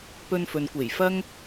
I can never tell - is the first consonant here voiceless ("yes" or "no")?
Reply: yes